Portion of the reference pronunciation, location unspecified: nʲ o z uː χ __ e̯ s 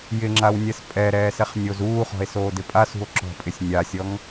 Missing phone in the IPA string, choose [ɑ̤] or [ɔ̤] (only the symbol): ɔ̤